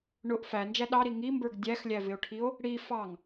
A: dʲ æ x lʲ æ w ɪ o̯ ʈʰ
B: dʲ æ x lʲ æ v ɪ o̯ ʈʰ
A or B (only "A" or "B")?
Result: B